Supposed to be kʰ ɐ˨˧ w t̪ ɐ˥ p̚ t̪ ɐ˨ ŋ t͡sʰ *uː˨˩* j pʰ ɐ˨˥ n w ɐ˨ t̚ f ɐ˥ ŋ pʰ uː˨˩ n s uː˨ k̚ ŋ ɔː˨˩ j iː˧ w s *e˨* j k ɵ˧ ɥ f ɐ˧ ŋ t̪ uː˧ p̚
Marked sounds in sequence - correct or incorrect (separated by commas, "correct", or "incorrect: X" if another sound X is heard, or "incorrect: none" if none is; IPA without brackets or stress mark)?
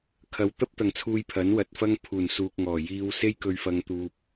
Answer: incorrect: uː˧, incorrect: e˥